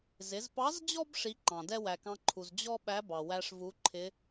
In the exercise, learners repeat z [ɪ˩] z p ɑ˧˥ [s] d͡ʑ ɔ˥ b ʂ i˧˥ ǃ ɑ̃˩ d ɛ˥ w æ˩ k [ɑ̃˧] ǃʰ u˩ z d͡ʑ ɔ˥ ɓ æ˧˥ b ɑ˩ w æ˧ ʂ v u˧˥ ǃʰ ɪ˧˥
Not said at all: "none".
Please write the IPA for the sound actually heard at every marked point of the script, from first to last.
ɪ˩˧, z, ɑ̃˧

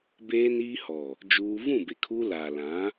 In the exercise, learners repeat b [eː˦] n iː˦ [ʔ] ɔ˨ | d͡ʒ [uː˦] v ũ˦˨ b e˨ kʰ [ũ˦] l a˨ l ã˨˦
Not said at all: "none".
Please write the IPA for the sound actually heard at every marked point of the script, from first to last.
eː˦, h, uː˦, u˦

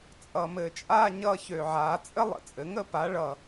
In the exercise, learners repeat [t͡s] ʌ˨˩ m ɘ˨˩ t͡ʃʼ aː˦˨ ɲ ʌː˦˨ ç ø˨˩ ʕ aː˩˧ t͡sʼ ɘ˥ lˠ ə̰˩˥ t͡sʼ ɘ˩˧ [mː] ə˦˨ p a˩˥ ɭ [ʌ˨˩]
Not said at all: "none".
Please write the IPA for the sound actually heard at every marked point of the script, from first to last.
t͡sʼ, ŋ, ʌ˨˩

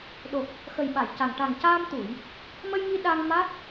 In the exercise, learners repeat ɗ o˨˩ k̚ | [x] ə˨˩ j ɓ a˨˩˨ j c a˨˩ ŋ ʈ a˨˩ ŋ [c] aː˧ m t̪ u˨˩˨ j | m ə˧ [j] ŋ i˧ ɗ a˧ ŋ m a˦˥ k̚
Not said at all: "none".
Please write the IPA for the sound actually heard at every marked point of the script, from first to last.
x, c, j

